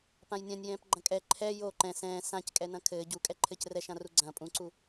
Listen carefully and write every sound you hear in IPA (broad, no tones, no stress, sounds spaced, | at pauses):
p ã j nʲ ã nʲ j ɛ̃ː p ɡ͡ǃ ɐ̃ kʼ ɛ ǃʰ ɛ j o ǃ ɛ̃ s ɛ̃ː s ã c kʼ ɛ n ɐ̃ kʰ ɘː ɟ u kʼ ɛ ǃʰ ɘː c r ɛ ʃ ã r u ɡ͡ǀ ɐ̃ː pʼ ũ ǀ u